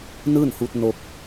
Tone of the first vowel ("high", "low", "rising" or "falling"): falling